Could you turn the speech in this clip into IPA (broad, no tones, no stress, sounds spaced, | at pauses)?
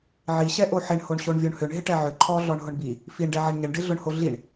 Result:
ʕ i ɕ ɛ ʔ o ħ ɪ ɳ h o ɳ ɕ o ɳ vʲ o ɳ h ʏ ɳ ɦ ɪ ʈ ɛ ʕ ʏ ǃʰ ɔ ɮ ɔ ɳ ɦ ʊ ɳ b i | f i ɳ ɖ ɛ ʕ ɛ ɳ ɲ ə ɳ ɖ ɪ ɮ ʊ ɳ h o ɮ i ɳ